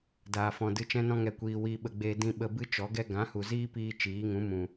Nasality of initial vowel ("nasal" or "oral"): oral